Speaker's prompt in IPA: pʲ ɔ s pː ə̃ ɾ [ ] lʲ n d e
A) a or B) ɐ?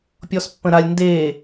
A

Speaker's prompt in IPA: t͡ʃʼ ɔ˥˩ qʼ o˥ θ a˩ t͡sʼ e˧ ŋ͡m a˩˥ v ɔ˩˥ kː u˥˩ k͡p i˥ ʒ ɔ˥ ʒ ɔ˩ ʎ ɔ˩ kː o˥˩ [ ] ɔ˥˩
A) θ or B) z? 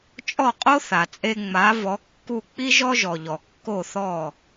A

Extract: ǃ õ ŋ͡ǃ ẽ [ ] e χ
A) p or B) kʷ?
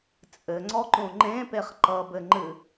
A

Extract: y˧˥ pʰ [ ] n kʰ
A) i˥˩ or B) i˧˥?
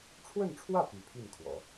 A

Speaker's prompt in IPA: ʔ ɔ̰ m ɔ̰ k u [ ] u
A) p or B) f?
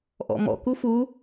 B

